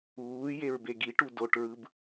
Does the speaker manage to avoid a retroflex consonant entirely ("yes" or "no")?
no